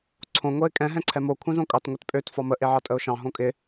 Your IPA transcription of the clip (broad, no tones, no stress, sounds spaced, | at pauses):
ǀʰ õ ŋʷ ɛ ɪ̯ kʼ ɛ̃ ɦ ɛ̃ ǀʰ ɛ m o kʷʰ ɛ̃ z õ kʼ ɑ t ŋʷ e t pʼ ø t f ɒ m ə ʔ e ʕ ɑ tʼ ə ʊ̯ ʃ ɑ̃ ɦ õ kʼ ɪ